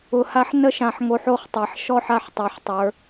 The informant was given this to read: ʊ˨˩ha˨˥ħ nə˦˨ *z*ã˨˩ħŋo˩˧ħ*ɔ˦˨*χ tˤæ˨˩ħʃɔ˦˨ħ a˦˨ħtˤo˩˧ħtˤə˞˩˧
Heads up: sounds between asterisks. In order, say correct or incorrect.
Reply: incorrect: ʃ, incorrect: o˦˨

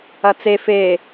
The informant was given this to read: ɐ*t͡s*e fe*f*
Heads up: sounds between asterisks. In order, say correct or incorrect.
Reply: correct, incorrect: none

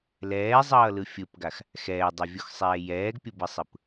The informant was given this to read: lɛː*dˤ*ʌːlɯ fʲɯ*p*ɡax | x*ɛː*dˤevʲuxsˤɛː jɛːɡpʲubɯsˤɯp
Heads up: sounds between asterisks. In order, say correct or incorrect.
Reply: incorrect: zˤ, correct, correct

